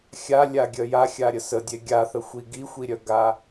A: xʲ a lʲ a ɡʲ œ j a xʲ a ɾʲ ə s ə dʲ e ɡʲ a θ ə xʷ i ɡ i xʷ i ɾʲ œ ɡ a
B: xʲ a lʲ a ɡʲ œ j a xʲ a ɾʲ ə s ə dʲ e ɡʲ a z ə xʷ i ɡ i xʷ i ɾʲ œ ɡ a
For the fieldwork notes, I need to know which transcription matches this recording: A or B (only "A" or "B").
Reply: A